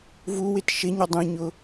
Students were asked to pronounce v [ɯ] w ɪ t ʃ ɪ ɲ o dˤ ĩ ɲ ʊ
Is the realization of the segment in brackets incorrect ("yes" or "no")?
yes